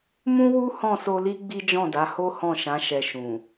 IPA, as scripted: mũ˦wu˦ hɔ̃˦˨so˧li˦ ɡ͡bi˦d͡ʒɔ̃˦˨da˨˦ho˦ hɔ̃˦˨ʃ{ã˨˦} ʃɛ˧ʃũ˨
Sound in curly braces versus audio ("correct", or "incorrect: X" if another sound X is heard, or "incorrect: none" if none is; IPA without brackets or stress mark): correct